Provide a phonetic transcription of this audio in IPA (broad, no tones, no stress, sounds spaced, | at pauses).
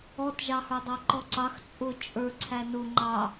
ɔ t ʒ ɑ h ə˞ dˤ ɑ ǃ ɔ ǀ ɑ x t͡sʼ ʊ t͡ʃʼ ə˞ ǀʰ æ n ʊ ŋ͡ǃ ɑ